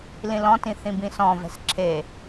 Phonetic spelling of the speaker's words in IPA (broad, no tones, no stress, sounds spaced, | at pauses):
l ĩ l ɔ̃ t ĩ θ ĩ b ĩ s ɔ̃ v ɛ̤ s ǁʰ e